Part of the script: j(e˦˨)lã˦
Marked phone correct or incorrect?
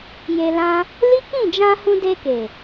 incorrect